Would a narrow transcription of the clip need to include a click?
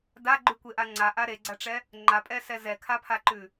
yes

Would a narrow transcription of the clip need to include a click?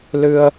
no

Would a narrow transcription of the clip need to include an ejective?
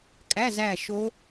yes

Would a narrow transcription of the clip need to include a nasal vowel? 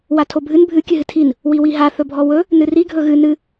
no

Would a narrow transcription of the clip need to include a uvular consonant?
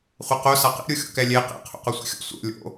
yes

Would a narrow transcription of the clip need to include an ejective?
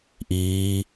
no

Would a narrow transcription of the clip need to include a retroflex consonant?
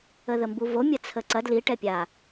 yes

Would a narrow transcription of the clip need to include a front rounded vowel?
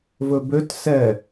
yes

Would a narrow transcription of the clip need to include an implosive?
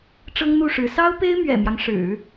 no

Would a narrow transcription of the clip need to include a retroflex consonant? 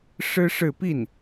yes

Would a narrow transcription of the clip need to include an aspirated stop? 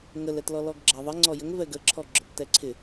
yes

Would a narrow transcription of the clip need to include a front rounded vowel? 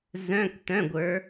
yes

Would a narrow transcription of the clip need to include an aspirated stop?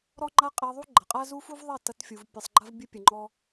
no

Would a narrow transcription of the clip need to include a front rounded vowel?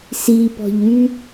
yes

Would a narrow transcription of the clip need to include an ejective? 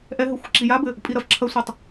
yes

